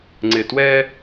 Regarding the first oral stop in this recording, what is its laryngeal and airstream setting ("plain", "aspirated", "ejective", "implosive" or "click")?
click